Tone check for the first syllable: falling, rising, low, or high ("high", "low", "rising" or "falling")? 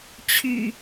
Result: low